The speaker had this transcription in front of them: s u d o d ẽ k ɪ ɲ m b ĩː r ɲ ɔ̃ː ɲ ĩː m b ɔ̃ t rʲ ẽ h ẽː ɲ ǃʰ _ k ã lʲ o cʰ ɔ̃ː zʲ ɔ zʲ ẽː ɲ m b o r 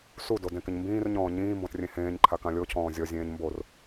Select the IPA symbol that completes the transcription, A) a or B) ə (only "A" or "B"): A